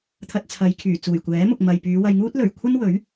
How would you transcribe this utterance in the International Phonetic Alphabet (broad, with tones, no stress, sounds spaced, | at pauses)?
t̪ʰ ɐ˧ t̚ t͡sʰ ɐ˨˧ j kʰ yː˨˩ t͡s uː˨˩ j kʷ ɛː˨˥ m ʊ˨ k̚ m ɐ˨ j p yː˨˧ w ɐ˧ j ŋ uː˥ t̚ l ɵ˨˩ ɥ kʷʰ ɐ˥ n w ɵ˨˥ ɥ